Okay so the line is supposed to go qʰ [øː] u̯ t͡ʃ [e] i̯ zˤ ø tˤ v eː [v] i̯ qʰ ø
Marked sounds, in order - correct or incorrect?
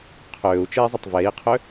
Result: correct, correct, incorrect

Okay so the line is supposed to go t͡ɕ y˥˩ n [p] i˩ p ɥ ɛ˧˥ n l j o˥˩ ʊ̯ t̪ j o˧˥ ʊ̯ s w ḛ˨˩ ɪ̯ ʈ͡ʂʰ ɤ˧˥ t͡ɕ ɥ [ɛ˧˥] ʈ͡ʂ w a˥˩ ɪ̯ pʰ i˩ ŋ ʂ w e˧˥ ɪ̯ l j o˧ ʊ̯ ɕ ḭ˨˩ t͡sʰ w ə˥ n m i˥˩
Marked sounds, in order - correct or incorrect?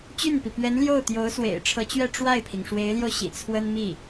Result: correct, incorrect

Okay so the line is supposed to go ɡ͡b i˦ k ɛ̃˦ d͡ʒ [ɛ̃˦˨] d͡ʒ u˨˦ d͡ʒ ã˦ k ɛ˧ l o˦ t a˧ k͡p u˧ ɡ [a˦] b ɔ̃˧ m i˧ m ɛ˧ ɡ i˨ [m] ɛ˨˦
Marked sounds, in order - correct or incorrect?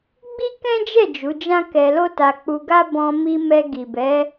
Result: incorrect, correct, incorrect

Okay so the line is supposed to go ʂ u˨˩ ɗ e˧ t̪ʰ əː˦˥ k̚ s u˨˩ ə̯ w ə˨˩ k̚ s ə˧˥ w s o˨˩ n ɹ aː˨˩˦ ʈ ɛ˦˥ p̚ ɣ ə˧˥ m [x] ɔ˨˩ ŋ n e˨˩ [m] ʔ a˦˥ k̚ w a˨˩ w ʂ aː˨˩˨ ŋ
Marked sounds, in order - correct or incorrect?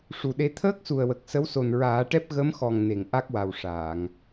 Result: correct, incorrect

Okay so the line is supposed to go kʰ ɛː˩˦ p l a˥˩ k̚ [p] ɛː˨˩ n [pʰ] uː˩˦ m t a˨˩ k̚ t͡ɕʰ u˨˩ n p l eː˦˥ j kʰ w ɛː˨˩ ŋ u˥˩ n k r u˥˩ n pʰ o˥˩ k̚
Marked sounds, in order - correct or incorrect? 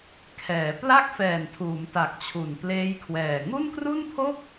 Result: incorrect, incorrect

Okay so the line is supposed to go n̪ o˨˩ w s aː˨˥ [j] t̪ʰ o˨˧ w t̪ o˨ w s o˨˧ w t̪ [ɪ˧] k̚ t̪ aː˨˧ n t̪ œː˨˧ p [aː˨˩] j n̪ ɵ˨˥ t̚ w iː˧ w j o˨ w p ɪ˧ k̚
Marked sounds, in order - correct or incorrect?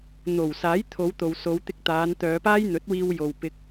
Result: correct, correct, incorrect

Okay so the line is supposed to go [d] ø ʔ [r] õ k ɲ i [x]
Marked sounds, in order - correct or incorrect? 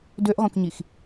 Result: correct, incorrect, correct

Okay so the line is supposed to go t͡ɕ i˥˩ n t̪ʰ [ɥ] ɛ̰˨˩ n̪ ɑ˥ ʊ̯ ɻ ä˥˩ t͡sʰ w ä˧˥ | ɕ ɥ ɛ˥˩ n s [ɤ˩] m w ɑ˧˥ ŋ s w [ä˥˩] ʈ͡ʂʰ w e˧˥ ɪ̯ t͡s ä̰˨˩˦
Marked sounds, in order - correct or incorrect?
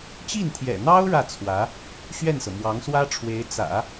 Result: incorrect, correct, incorrect

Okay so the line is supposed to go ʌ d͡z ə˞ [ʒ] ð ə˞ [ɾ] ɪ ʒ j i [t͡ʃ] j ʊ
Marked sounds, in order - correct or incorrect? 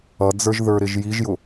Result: correct, correct, incorrect

